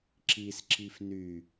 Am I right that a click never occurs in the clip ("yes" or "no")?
no